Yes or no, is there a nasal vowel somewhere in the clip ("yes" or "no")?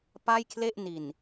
no